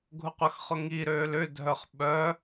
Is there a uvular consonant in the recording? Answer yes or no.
yes